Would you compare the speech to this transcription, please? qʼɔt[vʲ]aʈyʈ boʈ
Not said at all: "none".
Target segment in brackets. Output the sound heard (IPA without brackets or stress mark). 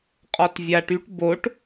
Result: vʲ